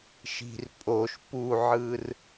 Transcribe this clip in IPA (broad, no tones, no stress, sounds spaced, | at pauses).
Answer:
ʃ i̤ r pʼ o ʃ p u ʕ ɯ r